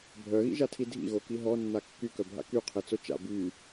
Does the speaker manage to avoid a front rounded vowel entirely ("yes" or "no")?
no